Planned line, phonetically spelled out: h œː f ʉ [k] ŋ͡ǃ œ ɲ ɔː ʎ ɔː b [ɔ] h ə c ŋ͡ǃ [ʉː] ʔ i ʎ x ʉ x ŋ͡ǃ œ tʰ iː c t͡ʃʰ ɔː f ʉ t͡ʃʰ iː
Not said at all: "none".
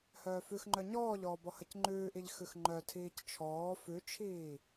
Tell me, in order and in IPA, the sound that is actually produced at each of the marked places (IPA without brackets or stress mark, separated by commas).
x, ɔ, ʉː